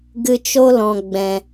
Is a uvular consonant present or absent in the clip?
absent